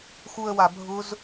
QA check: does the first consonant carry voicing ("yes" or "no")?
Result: no